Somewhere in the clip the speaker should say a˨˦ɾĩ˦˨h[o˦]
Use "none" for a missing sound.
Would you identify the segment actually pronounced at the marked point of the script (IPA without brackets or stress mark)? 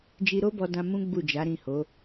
o˨˦